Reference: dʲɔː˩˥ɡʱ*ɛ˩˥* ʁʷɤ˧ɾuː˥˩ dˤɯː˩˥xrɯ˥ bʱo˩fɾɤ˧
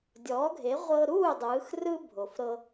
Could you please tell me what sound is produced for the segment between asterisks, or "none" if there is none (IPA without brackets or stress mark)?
e˩˥